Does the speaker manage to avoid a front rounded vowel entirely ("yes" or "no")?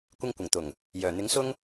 no